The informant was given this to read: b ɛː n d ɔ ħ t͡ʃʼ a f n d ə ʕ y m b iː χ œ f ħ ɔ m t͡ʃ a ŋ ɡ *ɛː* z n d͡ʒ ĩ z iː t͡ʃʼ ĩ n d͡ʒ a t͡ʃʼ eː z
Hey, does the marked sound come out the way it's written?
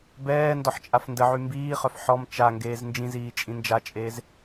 no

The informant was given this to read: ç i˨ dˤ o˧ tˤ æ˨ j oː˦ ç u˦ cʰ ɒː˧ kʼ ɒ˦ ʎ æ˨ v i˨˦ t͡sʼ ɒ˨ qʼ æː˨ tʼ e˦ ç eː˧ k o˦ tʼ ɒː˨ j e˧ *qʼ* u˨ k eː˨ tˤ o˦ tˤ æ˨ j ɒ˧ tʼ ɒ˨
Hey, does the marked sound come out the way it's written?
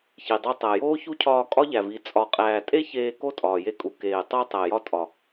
no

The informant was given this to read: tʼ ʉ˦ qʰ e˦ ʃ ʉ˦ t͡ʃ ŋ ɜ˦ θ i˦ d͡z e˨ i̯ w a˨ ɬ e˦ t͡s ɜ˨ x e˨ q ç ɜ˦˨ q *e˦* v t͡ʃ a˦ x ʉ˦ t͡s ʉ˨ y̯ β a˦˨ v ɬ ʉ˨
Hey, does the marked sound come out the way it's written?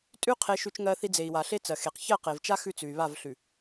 no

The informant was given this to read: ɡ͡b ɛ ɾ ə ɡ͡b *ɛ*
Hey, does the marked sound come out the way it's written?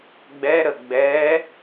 yes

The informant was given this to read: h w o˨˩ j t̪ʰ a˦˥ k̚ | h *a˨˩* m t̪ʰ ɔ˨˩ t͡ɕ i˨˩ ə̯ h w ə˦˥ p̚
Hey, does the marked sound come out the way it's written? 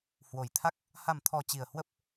yes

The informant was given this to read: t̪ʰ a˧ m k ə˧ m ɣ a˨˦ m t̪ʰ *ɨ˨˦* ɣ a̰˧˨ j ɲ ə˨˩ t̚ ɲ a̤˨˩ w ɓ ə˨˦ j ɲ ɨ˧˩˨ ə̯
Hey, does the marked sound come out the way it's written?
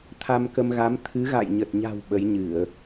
yes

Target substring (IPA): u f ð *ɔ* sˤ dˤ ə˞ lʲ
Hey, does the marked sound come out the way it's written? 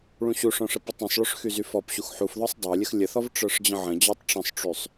yes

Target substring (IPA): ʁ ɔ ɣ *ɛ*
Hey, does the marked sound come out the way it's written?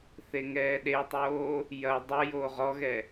yes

